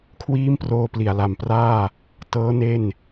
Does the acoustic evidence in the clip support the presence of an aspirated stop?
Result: yes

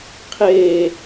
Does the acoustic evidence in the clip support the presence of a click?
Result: no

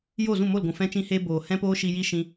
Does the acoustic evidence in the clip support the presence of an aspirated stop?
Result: no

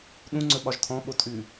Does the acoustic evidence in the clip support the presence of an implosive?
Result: yes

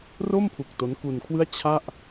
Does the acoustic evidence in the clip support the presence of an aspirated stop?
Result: yes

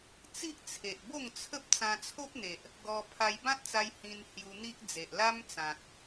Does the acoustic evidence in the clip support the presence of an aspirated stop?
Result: yes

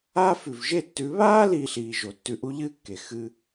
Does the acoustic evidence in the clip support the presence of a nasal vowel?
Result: no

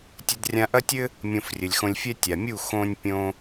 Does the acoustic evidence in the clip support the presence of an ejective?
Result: no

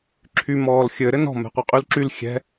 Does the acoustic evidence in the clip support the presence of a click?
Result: yes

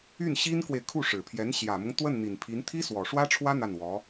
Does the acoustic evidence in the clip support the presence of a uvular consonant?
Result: no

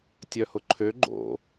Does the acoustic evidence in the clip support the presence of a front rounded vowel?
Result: yes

